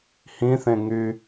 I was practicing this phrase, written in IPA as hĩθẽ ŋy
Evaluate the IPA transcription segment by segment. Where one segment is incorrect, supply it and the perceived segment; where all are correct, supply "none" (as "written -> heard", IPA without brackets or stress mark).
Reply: none